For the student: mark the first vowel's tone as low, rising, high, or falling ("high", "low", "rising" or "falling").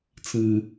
low